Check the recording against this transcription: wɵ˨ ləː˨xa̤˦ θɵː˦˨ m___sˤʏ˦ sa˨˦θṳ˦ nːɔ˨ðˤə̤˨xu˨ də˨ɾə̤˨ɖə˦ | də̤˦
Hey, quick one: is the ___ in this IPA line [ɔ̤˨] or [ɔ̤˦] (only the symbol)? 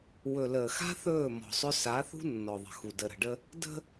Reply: ɔ̤˨